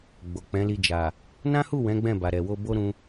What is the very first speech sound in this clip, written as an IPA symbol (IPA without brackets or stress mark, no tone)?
ɡ͡b